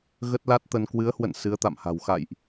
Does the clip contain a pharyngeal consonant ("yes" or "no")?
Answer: no